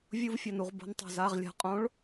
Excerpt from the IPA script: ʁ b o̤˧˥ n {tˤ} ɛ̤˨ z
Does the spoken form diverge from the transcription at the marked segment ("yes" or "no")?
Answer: no